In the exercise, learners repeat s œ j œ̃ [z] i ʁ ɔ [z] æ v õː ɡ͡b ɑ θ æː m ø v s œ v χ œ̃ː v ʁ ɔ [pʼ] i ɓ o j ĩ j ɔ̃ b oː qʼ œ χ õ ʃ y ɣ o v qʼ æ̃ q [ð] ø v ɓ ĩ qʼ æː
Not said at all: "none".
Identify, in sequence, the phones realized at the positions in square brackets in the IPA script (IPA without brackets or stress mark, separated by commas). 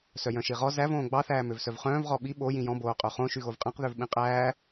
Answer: ʃ, z, ɓ, ð